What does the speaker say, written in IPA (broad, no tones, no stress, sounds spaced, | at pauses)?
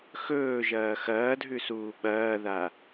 x ɵː ʒ ɐː x ɐː dʱ ʉ s uː ɓ ɐː ð a